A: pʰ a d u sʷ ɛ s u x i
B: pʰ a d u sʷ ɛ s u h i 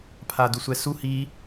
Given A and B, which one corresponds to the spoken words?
B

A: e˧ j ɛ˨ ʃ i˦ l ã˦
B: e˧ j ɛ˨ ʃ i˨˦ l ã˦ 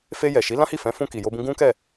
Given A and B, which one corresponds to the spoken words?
B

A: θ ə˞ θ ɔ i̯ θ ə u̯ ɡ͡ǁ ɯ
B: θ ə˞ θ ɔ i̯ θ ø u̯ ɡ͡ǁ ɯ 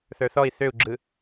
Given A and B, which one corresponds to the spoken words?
B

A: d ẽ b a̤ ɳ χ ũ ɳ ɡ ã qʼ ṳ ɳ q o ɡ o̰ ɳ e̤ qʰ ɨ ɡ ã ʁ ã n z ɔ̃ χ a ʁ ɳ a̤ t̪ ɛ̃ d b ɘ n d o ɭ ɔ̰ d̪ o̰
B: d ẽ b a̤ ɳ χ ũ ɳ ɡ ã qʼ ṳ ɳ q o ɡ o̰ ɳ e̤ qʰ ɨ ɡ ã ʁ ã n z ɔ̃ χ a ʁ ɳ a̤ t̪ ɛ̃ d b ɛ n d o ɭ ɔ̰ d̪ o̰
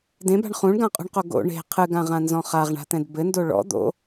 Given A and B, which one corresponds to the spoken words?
A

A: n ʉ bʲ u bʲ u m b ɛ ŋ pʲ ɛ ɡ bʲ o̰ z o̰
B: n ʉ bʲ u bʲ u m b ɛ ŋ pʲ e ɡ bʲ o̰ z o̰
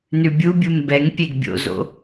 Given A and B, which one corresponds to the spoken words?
B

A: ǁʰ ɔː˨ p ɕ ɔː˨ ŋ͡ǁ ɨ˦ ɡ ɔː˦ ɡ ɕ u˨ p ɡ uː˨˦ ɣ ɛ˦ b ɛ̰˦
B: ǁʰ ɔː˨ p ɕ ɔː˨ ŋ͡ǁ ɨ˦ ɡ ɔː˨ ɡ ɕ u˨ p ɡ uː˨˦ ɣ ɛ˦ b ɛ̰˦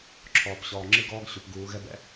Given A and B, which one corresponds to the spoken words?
A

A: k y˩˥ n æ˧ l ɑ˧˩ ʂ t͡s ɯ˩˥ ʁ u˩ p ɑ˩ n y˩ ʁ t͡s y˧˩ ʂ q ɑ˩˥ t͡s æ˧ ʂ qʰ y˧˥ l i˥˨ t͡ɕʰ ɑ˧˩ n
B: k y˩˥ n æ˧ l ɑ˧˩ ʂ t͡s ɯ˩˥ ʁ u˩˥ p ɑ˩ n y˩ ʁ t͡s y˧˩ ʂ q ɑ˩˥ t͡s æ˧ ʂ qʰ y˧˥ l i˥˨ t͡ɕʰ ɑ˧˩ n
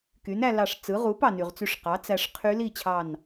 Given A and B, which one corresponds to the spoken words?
B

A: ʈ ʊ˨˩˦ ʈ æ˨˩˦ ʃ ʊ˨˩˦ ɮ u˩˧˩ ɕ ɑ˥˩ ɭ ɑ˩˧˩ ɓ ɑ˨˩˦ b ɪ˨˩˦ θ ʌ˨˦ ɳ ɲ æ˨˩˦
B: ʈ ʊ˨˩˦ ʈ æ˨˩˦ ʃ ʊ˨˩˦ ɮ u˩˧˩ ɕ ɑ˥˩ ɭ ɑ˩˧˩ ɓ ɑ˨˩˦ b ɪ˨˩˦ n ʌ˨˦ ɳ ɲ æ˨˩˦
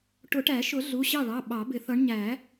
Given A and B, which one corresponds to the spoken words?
A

